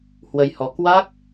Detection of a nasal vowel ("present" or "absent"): absent